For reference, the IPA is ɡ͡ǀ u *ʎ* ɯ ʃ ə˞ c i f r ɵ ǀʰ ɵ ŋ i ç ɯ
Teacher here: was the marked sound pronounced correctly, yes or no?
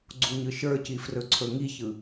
no